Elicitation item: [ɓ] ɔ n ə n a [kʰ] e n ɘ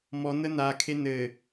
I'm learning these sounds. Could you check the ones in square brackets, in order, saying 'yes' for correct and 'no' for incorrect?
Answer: no, yes

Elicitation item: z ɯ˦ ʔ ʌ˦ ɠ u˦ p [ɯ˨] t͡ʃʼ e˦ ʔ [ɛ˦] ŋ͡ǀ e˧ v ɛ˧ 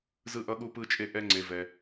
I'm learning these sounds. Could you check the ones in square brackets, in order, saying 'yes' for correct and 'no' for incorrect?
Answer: no, yes

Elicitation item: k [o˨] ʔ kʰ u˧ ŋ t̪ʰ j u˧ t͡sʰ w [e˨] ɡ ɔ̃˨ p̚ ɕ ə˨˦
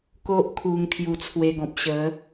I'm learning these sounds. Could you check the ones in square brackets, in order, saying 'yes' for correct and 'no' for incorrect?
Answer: no, no

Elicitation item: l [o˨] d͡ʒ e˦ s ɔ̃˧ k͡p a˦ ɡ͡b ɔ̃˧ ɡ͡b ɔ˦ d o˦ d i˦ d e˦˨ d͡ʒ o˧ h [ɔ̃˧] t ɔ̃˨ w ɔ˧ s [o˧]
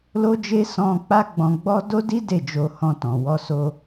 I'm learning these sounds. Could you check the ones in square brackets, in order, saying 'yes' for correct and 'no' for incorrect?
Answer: no, yes, yes

